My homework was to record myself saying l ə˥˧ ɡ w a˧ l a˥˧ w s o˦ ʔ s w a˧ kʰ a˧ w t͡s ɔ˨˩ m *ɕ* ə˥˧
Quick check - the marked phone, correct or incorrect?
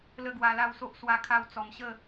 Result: correct